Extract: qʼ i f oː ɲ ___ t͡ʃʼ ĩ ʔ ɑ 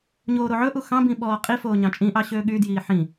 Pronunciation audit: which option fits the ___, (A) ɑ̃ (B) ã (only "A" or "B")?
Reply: A